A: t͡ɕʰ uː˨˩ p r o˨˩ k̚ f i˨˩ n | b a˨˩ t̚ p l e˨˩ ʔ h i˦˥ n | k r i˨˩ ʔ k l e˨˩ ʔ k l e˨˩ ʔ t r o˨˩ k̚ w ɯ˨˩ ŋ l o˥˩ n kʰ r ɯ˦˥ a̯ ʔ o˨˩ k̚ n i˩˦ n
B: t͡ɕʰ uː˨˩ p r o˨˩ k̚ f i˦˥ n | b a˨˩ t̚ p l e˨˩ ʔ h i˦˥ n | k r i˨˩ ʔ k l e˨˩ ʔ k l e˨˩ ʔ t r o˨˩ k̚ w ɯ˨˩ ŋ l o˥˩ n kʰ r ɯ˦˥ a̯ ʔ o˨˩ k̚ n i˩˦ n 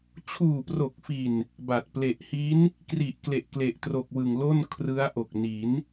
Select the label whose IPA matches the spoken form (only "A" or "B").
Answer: A